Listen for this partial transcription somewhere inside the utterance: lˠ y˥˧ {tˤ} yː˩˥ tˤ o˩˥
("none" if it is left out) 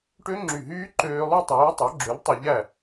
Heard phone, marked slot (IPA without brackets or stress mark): tˤ